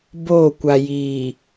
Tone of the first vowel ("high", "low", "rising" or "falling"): falling